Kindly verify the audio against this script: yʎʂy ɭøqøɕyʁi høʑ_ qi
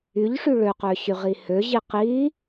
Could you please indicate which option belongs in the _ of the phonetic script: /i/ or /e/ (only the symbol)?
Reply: i